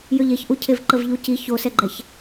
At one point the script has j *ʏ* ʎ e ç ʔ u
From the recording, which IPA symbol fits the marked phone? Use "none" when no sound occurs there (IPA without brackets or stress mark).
ʏ